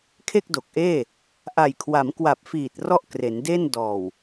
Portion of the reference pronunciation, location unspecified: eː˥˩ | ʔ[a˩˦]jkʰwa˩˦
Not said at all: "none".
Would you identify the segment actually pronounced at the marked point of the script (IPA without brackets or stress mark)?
a˨˩